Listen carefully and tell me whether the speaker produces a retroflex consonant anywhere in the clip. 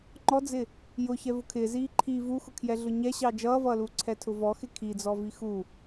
no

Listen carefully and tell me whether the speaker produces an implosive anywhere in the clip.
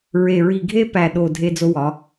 yes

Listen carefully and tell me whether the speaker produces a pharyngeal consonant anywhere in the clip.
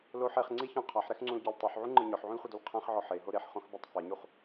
yes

